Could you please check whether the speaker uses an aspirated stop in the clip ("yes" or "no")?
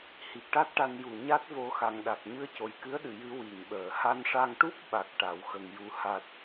no